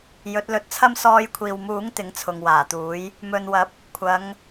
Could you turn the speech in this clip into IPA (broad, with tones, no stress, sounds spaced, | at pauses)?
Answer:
j ɵ˨˥ t̚ l ɵ˧ t̚ t͡sʰ ɐ˥ m s ɔː˧ j kʷʰ iː˨ w m uː˨˥ ŋ t̪ ɪ˨˥ ŋ t͡sʰ ʊ˨ ŋ w aː˨˩ t̪ uː˨˥ j | m ɵ˨ n w ɐ˨˥ p̚ | kʷʰ ɐ˨˧ ŋ